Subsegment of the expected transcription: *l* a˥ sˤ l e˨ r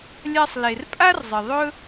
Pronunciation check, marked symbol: incorrect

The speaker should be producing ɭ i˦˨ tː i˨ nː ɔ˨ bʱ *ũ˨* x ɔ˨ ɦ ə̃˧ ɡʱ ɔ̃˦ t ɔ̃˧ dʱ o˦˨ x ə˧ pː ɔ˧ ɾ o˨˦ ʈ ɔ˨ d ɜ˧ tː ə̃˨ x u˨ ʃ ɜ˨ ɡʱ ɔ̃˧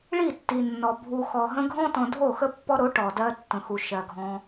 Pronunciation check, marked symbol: incorrect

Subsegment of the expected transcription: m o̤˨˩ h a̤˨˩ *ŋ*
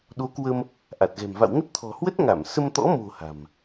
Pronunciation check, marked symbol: incorrect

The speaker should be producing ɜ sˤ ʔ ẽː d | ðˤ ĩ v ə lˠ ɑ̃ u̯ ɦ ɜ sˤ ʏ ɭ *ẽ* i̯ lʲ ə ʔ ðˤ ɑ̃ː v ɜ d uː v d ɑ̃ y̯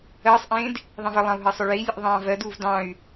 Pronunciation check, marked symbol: incorrect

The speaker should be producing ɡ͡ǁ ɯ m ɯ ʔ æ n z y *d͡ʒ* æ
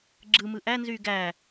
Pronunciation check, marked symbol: incorrect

